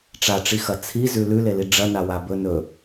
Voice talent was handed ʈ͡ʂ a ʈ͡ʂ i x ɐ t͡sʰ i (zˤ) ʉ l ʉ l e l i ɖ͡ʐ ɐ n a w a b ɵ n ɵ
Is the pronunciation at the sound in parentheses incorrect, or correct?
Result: incorrect: z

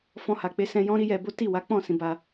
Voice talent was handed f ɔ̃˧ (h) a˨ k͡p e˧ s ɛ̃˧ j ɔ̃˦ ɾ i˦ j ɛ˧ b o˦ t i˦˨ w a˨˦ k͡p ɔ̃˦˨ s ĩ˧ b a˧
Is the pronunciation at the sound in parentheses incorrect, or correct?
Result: correct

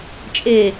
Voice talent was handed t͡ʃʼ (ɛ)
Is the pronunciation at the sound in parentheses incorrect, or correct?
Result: incorrect: e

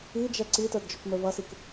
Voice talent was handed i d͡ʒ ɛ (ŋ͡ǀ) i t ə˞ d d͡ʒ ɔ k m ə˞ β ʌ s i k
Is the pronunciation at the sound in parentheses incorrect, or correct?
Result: incorrect: ǀ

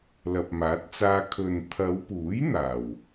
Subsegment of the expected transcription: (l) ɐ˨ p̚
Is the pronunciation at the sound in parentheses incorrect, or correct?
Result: correct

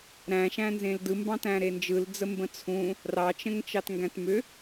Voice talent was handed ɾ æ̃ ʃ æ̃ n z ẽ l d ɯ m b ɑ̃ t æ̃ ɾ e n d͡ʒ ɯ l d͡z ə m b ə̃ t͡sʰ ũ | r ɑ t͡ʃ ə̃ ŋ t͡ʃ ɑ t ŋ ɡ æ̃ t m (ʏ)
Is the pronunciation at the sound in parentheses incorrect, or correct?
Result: correct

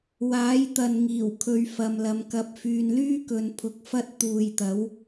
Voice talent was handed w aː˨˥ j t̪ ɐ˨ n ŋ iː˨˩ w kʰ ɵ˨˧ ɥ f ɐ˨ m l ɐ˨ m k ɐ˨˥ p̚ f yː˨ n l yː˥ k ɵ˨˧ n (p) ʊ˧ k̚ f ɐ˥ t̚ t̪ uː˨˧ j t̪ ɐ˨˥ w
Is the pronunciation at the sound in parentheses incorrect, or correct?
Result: incorrect: pʰ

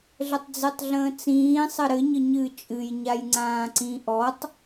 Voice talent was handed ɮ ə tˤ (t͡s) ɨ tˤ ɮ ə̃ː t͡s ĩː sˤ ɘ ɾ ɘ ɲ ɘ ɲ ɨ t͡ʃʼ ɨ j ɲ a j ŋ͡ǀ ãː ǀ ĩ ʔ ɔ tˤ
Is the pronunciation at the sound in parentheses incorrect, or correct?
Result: incorrect: d͡z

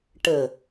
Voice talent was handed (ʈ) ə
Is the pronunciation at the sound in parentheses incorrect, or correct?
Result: correct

